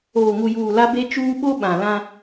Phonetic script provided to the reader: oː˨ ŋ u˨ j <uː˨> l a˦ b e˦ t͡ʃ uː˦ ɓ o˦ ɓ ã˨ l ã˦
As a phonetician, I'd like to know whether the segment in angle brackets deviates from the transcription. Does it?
no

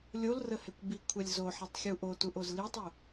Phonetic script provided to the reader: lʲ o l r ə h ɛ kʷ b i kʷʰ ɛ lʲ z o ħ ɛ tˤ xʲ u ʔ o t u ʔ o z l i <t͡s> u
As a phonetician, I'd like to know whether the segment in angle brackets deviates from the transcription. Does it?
yes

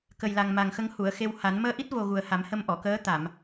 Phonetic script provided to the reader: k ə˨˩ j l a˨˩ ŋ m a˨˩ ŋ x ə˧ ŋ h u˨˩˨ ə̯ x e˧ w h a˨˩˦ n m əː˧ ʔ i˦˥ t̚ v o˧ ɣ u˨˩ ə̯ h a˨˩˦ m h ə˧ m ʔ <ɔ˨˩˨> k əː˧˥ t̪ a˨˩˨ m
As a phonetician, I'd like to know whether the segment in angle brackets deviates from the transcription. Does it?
no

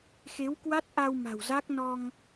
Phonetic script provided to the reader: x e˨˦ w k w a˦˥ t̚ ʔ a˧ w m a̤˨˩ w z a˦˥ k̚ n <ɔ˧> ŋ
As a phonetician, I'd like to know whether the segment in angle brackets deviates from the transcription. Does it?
no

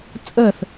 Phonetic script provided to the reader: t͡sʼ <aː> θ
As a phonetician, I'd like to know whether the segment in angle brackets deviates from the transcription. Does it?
yes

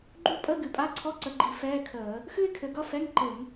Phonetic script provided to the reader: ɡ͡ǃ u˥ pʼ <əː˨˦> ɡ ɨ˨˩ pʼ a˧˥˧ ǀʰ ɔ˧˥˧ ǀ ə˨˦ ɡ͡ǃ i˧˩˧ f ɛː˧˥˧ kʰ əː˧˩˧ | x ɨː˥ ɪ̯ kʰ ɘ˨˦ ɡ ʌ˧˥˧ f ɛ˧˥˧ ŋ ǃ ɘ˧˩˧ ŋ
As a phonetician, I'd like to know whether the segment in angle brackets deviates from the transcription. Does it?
yes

